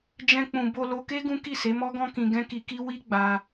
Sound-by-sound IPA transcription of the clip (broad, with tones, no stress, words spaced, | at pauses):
d͡ʒɛ̃˧k͡pũ˨ bo˧lo˧ke˦ ɡũ˦ki˦˨se˨˦ mɔ˦ɡɔ̃˦kĩ˧ ɡɛ̃˦ki˧ki˦ wi˦ɡ͡ba˧